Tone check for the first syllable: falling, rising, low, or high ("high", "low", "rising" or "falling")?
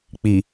low